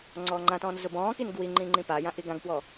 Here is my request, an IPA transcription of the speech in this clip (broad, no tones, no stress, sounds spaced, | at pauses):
ŋ͡ǀ ɔː ŋ͡ǃ ã t ɔ̃ː n z ʊ b ɔ̃ː k i n ɡ w i ŋ͡ǃ ĩ ŋ͡ǃ ĩ p a j ã ʔ i ɡ ã ɡ p w ɔ